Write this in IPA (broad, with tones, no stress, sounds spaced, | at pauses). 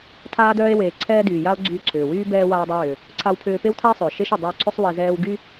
tʰ aː˧ d œː˧ e̯ w eː˩ ǀʰ ɛː˧ d yː˩ j a˧ o̯ ɡ͡ǀ yː˧ ǀʰ ʏː˩ w yː˥ b ɛː˧ w aː˧ dˤ ɛ˧ w ʏː˩ | ǀʰ a˧ w pʰ ʏː˧ p e˥ w tʰ a˥ e̯ sˤ ʏː˩ ʃ e˥ ʃ y˩ dˤ y˧ o̯ ǀʰ ʏ˥ sˤ w e˧ z ɛː˥ w ɡ y˥